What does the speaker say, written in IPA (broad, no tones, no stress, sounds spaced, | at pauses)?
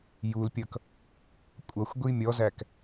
j u l pʲ ʌ k | kʷʼ ʌ xʷ ɡʷ i mʲ ɔ z æ k